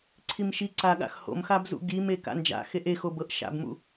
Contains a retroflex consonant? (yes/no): no